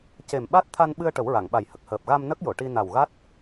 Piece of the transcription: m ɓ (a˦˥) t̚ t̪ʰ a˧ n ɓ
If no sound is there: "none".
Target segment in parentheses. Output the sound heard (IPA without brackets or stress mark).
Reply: a˦˥